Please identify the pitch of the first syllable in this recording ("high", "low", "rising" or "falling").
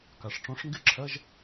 low